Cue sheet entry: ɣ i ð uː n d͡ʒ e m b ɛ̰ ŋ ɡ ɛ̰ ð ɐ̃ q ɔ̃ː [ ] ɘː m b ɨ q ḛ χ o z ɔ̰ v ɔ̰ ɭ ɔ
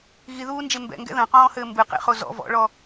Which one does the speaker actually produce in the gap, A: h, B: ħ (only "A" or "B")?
A